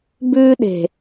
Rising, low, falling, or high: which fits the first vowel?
high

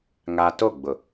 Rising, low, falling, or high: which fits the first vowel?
high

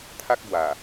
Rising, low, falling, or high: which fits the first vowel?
high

